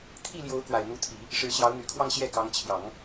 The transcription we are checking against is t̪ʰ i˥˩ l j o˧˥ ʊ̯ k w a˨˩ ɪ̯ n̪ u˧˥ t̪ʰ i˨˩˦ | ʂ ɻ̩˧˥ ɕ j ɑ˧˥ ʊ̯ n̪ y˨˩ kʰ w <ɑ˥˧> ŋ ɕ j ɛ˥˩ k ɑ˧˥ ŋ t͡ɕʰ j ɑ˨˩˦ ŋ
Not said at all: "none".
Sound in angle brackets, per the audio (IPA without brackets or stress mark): ɑ˥˧